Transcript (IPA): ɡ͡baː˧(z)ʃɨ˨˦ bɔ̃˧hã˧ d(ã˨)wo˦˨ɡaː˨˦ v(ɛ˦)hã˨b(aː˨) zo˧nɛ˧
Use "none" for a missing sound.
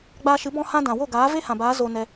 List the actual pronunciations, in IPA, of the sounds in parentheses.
none, ã˨, e˦, aː˨˦

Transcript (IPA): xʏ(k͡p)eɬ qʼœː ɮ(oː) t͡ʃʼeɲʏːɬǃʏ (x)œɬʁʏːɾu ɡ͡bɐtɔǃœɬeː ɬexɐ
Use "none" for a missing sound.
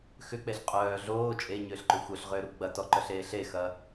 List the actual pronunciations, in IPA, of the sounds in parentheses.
k͡p, oː, xʷ

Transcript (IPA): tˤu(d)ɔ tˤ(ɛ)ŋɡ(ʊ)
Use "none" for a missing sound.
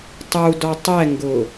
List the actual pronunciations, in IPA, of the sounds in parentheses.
d, ɛ, ʊ

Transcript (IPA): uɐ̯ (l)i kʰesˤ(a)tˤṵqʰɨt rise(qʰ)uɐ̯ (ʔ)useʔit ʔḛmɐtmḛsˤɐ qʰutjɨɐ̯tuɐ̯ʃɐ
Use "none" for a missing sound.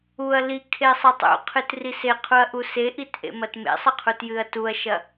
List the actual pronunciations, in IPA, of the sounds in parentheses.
l, ɐ, qʰ, ʔ

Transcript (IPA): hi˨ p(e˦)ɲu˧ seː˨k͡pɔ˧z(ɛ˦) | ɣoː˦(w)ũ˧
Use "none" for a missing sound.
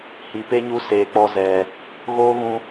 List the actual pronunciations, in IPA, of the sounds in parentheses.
e˦, ɛ˨, ɣ

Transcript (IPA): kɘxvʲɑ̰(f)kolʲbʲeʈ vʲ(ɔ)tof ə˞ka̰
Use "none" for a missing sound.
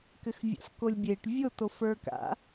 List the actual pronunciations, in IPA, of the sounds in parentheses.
f, o

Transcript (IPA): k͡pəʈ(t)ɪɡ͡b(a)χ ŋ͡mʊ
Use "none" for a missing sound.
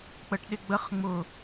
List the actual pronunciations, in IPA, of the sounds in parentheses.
ɗ, ə

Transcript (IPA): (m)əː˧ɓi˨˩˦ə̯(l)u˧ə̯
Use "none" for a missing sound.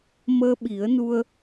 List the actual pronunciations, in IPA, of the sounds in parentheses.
m, n

